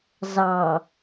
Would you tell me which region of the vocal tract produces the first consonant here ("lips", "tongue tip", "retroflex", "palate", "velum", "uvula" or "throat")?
tongue tip